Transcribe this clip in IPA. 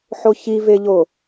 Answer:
ħ o ç i v e ʎ o

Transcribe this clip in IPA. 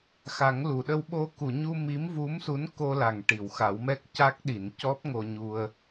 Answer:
x a˨˩˦ ŋ l u˨˩˨ ɗ ə˧ w ɓ o˧ k u˨˩˨ ɲ u˧ m i˧˥ m v u˧˥ m s u˧˥ n k o˧ l a˨˩˨ ŋ ʈ i˨˩˨ w x a˨˩˦ w m ɛ˦˥ k̚ c a˦˥ k̚ ɗ i˨˩˨ n c ɔ˦˥ p̚ ŋ o˧ ɲ u˧ ə̯

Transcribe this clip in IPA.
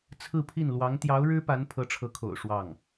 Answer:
t͡sʰ ɹ̩˥˧ pʰ i˥˩ n l w ɑ˧˥ ŋ t̪ j ɑ˧˥ ʊ̯ ɻ ɻ̩˥ p a˧˥ n pʰ ɤ˧˥ ʈ͡ʂʰ ɤ˧˥ kʰ o̰˨˩ ʊ̯ ʂ w ɑ˥˩ ŋ

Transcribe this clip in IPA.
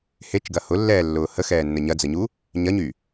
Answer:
h e t͡ʃ ɡ ɐ h ʊ lː ɛː lː ʊː h ə x ɛː nː ə ɲ ɐ d͡z ə ɲ u | ɲ ɐ ɲ y

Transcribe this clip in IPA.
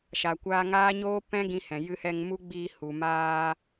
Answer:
ʃ a˨ kʷ aː˧ ŋ aː˦ ɲ oː˦ p ɛ̃˦ ɡ ĩ˧ h ɛ̃˨ j ɨ˧ h ɛ˧ ŋ m u˦ ɡ͡b iː˧ h u˨ m aː˧

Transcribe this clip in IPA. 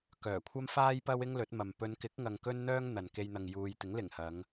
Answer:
k œː˨˩ kʷʰ ɐ˥ m f aː˥ j p ɐ˥ w ɪ˥ ŋ l ɵ˨˥ t̚ m ɐ˨ m p ɵ˨˧ n k ɪ˨˥ k̚ ŋ ɐ˨ ŋ k ɵ˧ n n̪ œː˧ ŋ n̪ ɐ˨ n k e˧ j n̪ ɐ˨ ŋ j uː˨ j t̪ ɪ˨˥ ŋ l ɪ˨˩ ŋ h ɐ˨˧ ŋ

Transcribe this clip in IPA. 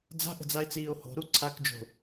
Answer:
d͡z a̤ ʔ ə̤ d͡z a e̯ t͡s iː o̯ h o̤ ɾ u ǀʰ a k d͡ʒ o̤

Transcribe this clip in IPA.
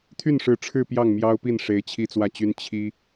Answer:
t̪ʰ y˥˩ n ʂ ɻ̩˧˥ ʈ͡ʂʰ ɻ̩˥˧ p j ɑ˥˩ ŋ m j ɑ˥ ʊ̯ p i˥˩ n ʂ e˧˥ ɪ̯ t͡ɕʰ i˥ t͡s w ä˥˩ t͡ɕ y˥ n t͡ɕʰ i˥

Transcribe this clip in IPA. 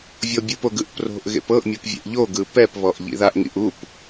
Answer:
vʲ ɤ bʲ ɯ p o ɡ ɯ ʔ p r o̤ ʔ ɣ ḛ p ɤ ʔ mʲ o p vʲ ḛ ʔ ʎ o ɡ ɯ p ɛ p β ɔ ʔ ʎ ḭ ð a ʔ ŋ ḭ ʔ u p

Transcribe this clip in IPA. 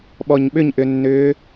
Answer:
ɓ ɔ ɲ ɓ ʏ ɲ ʔ ʏ nː ʏː

